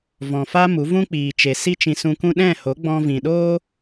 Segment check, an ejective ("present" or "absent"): absent